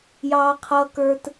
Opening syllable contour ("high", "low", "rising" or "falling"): high